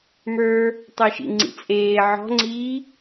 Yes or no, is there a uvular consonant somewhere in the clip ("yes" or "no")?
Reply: no